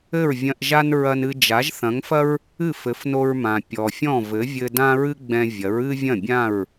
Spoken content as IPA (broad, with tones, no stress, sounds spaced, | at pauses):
ɘ˥˩ ɹ vʲ ɐ̃˧ ʔ ʒ a˥ n ɹ ɐ˧ n ɨ˧ d͡ʒ a˩˥ ʒ θ ɐ̃˩˥ ŋ f ɐ˥ ɹ | ɨ˥˩ f ɘ˩˥ f n o˧ ɹ m ã˩ pʲ ɔ˩ fʲ ɔ̃˥˩ v ɘ˩˥ vʲ ɘ˧ d ã˥ ɹ ɨ˥ ɡ͡b ɛ̃˧ vʲ ɐ˩˥ ɹ ɨ˥ vʲ ɐ̃˥˩ bʲ ã˥˩ ɹ